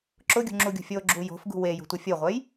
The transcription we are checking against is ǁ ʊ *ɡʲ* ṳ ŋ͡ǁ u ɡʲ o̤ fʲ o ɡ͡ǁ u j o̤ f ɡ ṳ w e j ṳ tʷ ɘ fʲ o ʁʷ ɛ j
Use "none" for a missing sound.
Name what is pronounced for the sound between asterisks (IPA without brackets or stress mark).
ɡʲ